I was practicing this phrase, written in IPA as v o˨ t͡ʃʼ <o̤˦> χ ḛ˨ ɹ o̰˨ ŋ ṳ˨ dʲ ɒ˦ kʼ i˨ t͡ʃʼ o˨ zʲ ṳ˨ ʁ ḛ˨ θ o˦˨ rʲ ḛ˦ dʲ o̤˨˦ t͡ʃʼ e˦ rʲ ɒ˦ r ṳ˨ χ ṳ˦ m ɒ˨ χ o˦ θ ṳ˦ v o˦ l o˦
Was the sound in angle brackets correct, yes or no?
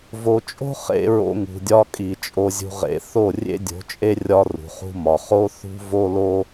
yes